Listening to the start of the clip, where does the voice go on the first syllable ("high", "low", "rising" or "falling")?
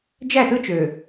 falling